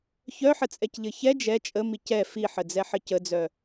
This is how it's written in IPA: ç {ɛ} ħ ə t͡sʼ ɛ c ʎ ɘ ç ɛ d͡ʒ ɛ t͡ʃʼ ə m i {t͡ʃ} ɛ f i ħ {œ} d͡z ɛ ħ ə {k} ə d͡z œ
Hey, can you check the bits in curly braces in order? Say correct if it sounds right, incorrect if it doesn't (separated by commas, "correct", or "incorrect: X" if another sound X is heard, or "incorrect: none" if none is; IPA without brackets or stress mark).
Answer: incorrect: œ, incorrect: c, incorrect: ə, incorrect: c